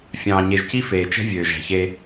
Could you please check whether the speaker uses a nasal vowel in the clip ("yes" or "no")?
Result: yes